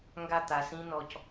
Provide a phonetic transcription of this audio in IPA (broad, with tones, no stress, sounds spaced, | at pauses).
ŋ ɡ a˦˨ t̪ a˨ s ĩ˦ n ɔ˨ c